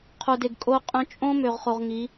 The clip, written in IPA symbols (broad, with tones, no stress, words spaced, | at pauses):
qʰo˨de˨ɡ kʼo˧qʼœ̃˧ t͡ʃʼõ˦ mø˨ʁχo˨ʁ ŋi˨˦